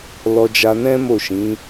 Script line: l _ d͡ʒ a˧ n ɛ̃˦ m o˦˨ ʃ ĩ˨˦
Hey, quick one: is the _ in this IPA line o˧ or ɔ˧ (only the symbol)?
ɔ˧